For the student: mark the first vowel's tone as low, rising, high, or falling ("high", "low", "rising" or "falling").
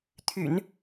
low